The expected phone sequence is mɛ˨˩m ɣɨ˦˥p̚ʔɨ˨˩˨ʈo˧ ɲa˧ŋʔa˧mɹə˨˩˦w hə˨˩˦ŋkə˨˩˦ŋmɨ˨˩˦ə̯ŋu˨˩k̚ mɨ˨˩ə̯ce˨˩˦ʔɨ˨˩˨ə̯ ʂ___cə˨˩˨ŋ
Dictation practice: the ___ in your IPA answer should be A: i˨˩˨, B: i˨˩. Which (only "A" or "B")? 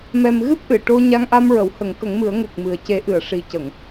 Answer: B